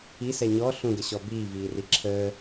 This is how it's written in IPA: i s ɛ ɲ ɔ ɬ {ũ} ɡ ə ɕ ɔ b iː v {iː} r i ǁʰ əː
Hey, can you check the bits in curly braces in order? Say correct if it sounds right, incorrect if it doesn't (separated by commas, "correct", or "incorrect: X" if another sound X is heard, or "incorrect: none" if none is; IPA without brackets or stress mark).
correct, correct